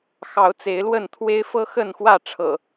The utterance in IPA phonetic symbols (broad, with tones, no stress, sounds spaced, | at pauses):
x ɑ˨˦ ʊ̯ t͡s e˨˦ ɪ̯ l w ə˥˨ n t̪ʰ w e˦ ɪ̯ f ɤ˦ x ə˥˨ n x w ä˥˨ ʈ͡ʂʰ ɤ̰˨˩